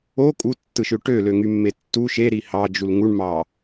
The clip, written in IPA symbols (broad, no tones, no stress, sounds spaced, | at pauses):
o kʼ u tː ɯ ʃ ø ʈ ø l ø ŋ y mː e tː u ʃ e ɾ i h ɑ d͡ʒ u l ŋ u ɳ m ɑ